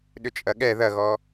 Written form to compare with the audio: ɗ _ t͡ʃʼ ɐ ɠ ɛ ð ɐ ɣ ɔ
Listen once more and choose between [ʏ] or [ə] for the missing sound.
ʏ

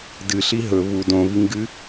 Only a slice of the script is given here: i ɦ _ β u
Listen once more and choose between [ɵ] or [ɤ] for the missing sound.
ɵ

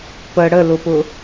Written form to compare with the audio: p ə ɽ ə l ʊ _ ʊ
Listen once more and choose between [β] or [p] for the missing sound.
p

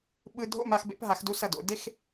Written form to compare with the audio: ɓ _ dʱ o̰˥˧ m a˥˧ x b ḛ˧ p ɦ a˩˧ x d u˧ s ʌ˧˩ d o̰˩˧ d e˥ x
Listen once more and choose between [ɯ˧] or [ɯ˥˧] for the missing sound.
ɯ˧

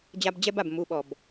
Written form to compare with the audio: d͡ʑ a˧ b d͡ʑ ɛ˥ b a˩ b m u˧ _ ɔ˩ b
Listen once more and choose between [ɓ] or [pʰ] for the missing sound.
ɓ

